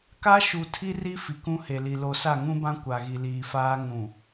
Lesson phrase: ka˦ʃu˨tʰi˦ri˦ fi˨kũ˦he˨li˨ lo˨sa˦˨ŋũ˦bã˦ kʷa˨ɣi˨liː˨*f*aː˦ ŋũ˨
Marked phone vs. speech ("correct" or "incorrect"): correct